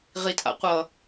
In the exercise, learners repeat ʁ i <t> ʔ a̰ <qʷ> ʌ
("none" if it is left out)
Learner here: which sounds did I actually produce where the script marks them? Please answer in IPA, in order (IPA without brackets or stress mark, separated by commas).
t, qʷ